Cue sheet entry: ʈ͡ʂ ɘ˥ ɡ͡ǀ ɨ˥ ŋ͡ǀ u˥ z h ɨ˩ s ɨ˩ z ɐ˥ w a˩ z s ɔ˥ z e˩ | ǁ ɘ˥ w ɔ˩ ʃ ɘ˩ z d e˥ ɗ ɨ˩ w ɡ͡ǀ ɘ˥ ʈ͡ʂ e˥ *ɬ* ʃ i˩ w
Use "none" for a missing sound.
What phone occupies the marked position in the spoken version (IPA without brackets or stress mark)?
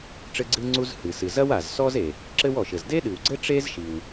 z